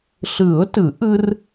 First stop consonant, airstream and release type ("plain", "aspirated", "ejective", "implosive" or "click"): plain